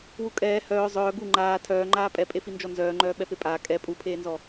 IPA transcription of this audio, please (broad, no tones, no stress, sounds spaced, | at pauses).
w u kʼ ɛː h œː zˤ œː ɡ u ŋ͡ǃ aː tʰ œː ŋ͡ǃ aː pʼ ɛ pʼ e f i n d͡ʒ ɔ n z œː ŋ͡ǃ œː ɓ ɛ p e pʼ aː kʼ ɛ pʼ u pʰ eː n z ɔ